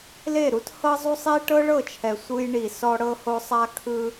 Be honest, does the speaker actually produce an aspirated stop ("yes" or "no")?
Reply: yes